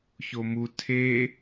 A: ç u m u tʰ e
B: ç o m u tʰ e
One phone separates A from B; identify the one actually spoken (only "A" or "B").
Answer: B